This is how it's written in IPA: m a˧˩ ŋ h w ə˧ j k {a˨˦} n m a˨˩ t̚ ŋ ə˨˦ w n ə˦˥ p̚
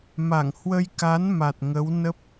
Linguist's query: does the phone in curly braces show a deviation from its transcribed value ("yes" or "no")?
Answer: no